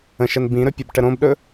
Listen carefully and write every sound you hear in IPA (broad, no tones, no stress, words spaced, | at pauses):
ə̃ʃən bĩɾɵpʲobʈə ɾõbɗɵ